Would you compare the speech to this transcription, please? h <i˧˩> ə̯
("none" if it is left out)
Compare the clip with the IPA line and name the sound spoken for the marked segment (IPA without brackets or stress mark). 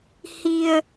i˧